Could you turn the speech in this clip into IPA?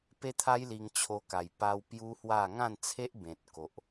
p e˦ t̪ʰ a˦ j l i˧ ŋ t͡ɕʰ o˧ k a˨˩ j p a˧ w p j u˦ h w a˥˧ ŋ ã˥˧ n t͡sʰ e˦ ʔ b ẽ˨ t̚ k o˨ ʔ

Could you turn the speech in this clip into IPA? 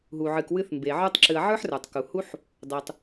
ɦ u˨ ʕ ɨ˨ k w ɨ˧ θ m b e˨ ʕ ə˞˦ tˤ ǁ ɨ˧ ɐ̯ ʕ ə˞˦ ħ r ə˞˨ tˤ k u˨ h u˦ ħ | dˤ u˧ tˤ

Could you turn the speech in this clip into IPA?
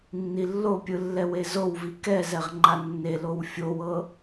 nː i lː o pʲ ɯ lː ɛ w e z o w v i k ɛ z ɛ ʁ ŋ͡ǃ a nː e l o w fʲ o w ɤ

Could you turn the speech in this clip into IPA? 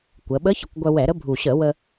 kʷ ə˩˧ ɓ ə˧˥ ç ə˩˧ kʷ ɡʷ œ˧ w ɛ˧˩˧ ɾ ə˧˥ bʱ u˨˩ ɕ ə˧˩˧ w ə˧

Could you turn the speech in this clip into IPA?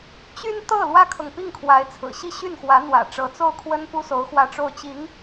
t͡ɕ y˥ n t̪ ɤ˥˩ l w ä˥ kʰ ɤ˨ ŋ p i˥˩ ŋ kʰ w a˧˥ ɪ̯ t͡sʰ ɹ̩˨˩ ɕ i˥ ɕ y˥˩ n x w ä˧˥ n̪ w ä̰˨˩ ʈ͡ʂ ɤ˧˥ t͡s o˥˩ ʊ̯ kʰ w ə˥ n p u˥ s o˧˥ ʊ̯ x w ä˥˧ ʈ͡ʂ o˥˩ ʊ̯ t͡ɕ i˧˥ ŋ

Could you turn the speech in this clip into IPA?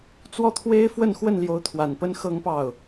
t͡s w ɔ˥˩ t̪ʰ w e˥ ɪ̯ f w ə˥˧ n x w ə˥˩ n l j o˧˥ ʊ̯ t̪ʰ w a˨˩ n p ə˥ n x ɤ˥ ŋ p ɑ˥˩ ʊ̯

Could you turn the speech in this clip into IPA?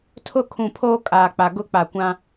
tʰ ʊ˦˨ kʰ ũ˨ pʰ oː˦ kʼ aː˨ k͡p a˨ ɡ ʊ˦ k͡p a˨ kʷ ã˦

